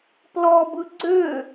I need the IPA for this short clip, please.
plɔbɯ ɡ͡ǀø

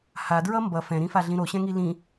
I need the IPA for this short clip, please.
hadɹʌ mbʌ fɛ̃ɾĩfaɮĩ ɾoɕɛ̃ŋi lĩ

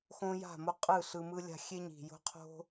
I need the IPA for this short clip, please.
xõ˦ja̤˦˨mo˦qʼɯ˦˨ ɬɯ˧mɯ˦lʲa̤˦ xʲe˦ɲi̤˨jo̤˦qʰo̤˦

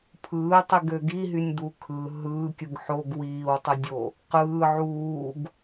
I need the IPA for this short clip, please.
pʰɯːtˤiɡø ɡiɦynʲd̪u kʰɯ ɦɯːkʲɯɡ ħoɡ wiːwtˤɯdʲo | qɯː ʕuːɡ

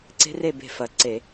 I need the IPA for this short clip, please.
ǀe̤˦˥re˥˨ be̤˥˨fɐ˨˩ ǀe˧˩˧

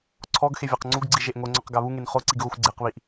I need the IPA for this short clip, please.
ǀʰɔɡxe vʲaqŋ͡ǀuɡɡ͡ǀi ʒeʔŋoŋ͡ǀɔq ɡaβuŋen χoǀiɡ ɣoxʷɡ͡ǀeqβiʔ

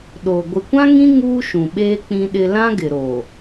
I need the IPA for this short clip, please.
ɗo˨ ɡʷɪ˨kʷã˦ŋĩ˦ ŋuː˦ʃũ˨ɓeː˦ k͡pĩ˦ɗɪ˦ lã˦ɡɪ˨ɾo˨

